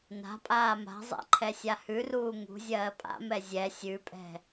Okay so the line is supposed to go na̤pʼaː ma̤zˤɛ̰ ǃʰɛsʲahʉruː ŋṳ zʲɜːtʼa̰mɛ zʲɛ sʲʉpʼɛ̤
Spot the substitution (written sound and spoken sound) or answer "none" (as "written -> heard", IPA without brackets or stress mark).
tʼ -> pʼ